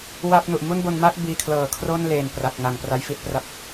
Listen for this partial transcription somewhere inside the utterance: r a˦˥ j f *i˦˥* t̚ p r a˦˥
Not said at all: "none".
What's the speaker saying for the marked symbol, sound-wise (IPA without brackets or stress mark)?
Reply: i˦˥